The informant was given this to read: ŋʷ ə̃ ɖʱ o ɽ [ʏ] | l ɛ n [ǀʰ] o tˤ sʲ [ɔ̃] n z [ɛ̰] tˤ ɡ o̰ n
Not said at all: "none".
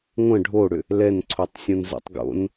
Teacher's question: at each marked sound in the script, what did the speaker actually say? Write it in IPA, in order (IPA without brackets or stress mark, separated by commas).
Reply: ʏ, ǀʰ, õ, ɛ̰